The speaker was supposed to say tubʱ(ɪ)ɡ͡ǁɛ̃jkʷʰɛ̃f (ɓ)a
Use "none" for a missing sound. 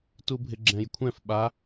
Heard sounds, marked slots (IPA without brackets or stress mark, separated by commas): ɪ, ɓ